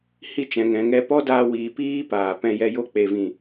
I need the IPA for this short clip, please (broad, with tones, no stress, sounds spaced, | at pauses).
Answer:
h i˧ t͡ʃ ɛ̃˨ ŋ ɛ̃˨ ŋ ɛ˧ p ɔ˦ d aː˧ w iː˨ p iː˧ p aː˨ p ɛ̃˧ j ɛ˧ j o˦ k͡p e˨ v ĩ˨